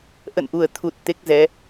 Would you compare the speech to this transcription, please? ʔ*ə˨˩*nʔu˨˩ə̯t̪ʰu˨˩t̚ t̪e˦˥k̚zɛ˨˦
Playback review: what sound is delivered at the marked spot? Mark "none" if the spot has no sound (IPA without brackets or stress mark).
ə̰˧˨